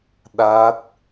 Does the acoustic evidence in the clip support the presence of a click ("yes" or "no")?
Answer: no